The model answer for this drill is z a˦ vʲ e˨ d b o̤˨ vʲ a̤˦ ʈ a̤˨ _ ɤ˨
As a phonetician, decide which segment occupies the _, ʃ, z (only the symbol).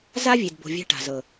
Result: z